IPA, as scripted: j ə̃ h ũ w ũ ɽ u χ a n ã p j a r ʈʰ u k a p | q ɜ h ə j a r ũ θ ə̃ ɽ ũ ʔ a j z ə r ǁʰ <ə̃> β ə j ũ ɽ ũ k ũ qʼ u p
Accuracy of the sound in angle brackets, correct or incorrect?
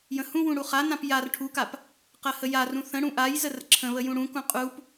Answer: correct